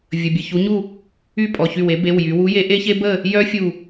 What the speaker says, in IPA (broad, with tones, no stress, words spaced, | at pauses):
vʲə˩˧˩bʲə˩˧˩çu˨˥ɲu˥˨ | y˥˨pʼɔ˩˧˩çy˧˩w e˨˥be˩˧˩wjy˩˧wu˨˥ je˨˥ʔe˦˥çe˦˥bə˥˨ | jœ˦˥ fʲu˧˩